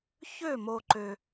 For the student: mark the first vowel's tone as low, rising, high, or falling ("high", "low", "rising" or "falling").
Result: falling